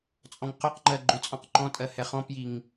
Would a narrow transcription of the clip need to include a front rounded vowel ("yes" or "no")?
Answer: yes